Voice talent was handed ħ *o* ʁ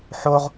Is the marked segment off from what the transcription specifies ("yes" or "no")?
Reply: no